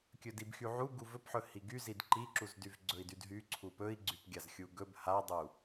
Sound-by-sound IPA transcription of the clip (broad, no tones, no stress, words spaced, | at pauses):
kʲɵdibxyʕu ɡuvɵpħɵ hiɡyzid ǃiǁuz dyvɡ͡ǀɵi̯dydɦy ǀʰupɵi̯ɡ͡ǀyp ɡʲazxʲuɡɵb hadˤu